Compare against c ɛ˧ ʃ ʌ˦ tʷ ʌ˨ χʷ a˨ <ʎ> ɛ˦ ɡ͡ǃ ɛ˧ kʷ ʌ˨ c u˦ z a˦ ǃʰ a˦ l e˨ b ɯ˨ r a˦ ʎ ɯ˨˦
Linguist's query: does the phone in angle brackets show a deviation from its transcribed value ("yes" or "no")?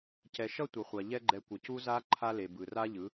no